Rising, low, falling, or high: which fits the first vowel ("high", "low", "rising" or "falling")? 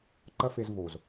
high